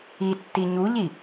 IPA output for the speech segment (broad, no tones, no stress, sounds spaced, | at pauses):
i tː i ɲ u ʎ i